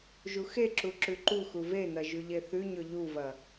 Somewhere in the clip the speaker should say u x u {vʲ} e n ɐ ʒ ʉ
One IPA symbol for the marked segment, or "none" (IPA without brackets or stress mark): v